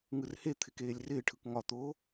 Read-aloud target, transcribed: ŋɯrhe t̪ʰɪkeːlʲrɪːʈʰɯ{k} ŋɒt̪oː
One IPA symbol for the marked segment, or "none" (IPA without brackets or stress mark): k